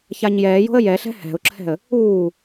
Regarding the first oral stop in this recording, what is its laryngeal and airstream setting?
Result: click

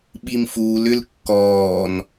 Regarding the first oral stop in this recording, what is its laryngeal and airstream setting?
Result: implosive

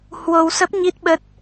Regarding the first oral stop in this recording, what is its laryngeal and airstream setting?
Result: plain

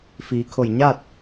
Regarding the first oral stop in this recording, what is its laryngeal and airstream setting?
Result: aspirated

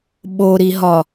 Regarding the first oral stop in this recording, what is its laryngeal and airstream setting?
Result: implosive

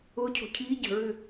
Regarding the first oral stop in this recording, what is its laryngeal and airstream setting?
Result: aspirated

